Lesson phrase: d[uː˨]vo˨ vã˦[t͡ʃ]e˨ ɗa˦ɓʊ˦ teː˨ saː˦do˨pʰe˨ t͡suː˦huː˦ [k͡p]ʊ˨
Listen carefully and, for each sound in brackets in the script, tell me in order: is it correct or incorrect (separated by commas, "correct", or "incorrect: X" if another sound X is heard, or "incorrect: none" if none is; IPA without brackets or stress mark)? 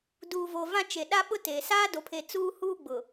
correct, correct, incorrect: ɡ͡b